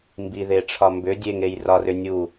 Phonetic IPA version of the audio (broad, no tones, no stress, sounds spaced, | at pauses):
m b i ð e ʈ͡ʂʰ ɒ m b ʏ dʲ e ŋ e j r ɒ r ʏ nʲ u